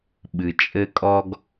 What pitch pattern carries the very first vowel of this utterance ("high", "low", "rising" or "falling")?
low